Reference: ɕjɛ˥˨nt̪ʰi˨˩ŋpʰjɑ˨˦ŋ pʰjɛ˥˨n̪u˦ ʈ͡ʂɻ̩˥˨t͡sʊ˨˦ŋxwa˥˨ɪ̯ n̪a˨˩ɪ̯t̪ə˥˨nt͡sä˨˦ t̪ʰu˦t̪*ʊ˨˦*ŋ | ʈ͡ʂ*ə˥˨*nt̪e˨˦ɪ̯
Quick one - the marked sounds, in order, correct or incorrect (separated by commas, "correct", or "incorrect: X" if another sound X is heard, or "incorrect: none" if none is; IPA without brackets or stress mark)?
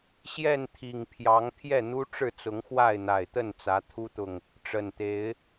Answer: incorrect: ʊ˨, incorrect: ə˨˩